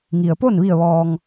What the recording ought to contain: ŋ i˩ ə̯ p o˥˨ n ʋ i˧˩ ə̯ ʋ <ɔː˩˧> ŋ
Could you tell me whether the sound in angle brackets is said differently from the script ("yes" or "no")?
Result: yes